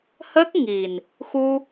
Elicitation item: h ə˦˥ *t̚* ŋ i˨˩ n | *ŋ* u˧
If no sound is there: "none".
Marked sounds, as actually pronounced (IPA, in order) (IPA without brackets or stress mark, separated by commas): k̚, x